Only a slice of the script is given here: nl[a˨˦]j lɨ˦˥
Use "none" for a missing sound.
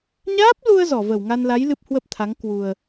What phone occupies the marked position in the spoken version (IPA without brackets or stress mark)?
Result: a˨˦